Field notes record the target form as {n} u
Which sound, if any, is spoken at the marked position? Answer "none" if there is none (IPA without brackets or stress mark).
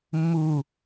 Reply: mː